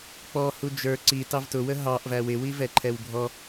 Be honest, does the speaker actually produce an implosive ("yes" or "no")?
no